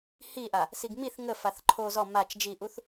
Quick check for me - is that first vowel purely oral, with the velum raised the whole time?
yes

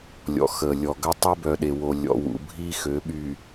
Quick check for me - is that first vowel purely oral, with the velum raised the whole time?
yes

